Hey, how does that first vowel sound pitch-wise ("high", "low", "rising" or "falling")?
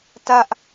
high